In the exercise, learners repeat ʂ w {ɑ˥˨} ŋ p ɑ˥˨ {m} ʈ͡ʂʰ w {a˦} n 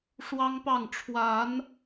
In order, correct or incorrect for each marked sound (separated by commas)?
incorrect, incorrect, incorrect